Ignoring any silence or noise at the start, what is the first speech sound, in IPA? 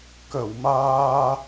k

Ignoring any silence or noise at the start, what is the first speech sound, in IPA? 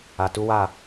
a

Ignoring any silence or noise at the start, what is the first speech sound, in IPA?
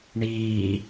ɳ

